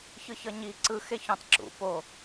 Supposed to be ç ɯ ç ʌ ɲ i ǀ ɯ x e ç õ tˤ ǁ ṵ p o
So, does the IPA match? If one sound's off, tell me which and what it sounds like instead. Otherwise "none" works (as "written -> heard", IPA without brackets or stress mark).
none